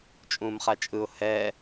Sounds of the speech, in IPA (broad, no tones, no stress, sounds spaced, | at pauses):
t͡ʃʼ ũː m χ a t͡ʃʼ ɯ ʊ̯ h ɛ